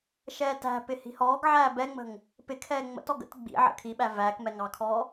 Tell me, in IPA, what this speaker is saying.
ʃɛːtæ̤pɪ hi̤hɔːɡʕæː bɛŋ͡mə̤ŋ | pɪkʰɛː ŋ͡mə̰tɔ ɡə̰t ɡ͡bḭ ʕə̰kʰiɓæ væːkmɛ ŋɑkʰɔː

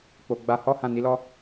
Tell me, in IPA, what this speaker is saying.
k͡po˧ ɡ͡ba˧ hɔ˦ hã˦˨ ni˨˦lɔ˦

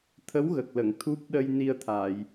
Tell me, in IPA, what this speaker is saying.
t̪ʰə˧˥wɣə˨˩k̚lə˨˩˨ŋ t̪ʰu˦˥p̚ ɗə˧j ni˧ə̯t̪ʰa˨˩˨j

